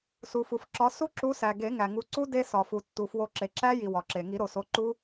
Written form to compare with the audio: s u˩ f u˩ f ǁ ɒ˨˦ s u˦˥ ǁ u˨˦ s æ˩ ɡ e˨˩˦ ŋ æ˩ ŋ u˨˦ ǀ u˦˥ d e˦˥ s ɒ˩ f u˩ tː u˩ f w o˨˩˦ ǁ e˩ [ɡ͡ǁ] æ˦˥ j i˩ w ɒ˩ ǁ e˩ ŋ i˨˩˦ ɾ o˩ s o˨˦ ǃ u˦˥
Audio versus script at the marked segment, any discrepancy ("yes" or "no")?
yes